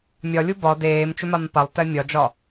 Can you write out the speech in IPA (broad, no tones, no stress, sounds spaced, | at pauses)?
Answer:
mʲ ɒ lʲ u b ɒ d eː m t͡ʃ ʏ m a m p a lˠ t ɛ mʲ ɒ d͡ʒ ɒ